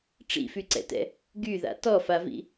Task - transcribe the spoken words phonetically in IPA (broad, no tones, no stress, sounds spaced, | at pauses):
ʈ͡ʂ ḭ f y ǀ ɛ̰ t ɛ̰ | ɡ y ð a̰ t ɔ f a v ḭ